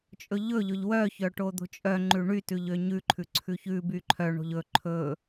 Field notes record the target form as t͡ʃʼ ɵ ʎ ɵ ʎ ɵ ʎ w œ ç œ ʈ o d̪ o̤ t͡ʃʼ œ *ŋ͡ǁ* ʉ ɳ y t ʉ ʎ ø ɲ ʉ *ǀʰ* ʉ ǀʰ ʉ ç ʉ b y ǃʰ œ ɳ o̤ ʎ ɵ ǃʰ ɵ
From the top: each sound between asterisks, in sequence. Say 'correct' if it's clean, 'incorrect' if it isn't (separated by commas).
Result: incorrect, incorrect